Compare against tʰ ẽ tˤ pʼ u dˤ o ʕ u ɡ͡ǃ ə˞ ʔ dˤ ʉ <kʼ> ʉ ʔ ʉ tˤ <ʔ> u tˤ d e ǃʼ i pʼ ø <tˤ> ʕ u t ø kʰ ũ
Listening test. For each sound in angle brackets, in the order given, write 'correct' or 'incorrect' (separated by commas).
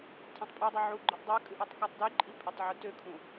correct, incorrect, correct